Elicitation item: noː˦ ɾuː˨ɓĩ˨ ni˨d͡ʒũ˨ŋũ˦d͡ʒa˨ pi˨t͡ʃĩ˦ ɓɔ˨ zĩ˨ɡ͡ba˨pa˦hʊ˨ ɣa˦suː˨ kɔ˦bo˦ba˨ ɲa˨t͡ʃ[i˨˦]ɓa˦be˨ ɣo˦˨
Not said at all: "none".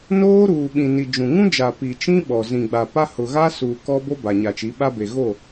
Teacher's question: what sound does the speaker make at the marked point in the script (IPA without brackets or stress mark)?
i˨˦